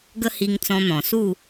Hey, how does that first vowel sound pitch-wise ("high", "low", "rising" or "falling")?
high